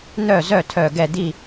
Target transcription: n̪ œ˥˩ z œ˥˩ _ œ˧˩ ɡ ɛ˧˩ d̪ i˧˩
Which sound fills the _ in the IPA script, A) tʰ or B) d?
A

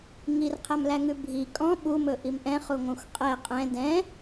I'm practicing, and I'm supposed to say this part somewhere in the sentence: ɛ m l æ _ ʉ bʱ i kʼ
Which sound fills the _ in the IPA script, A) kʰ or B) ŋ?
B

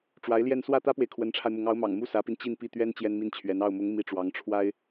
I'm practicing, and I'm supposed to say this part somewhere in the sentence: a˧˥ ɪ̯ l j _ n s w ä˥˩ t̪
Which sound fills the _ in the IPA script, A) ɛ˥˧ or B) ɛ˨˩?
A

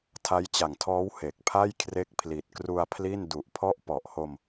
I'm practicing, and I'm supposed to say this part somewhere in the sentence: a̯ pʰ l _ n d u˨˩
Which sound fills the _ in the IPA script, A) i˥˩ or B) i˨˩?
A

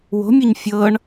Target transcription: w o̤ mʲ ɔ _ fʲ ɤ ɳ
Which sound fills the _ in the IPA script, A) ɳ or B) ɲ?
B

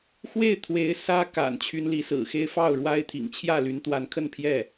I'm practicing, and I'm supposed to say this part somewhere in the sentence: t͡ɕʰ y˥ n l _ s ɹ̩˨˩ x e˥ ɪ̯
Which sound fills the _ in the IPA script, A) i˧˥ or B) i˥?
A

